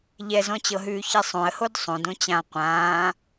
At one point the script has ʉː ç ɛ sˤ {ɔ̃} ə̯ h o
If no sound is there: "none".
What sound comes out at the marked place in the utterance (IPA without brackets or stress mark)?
õ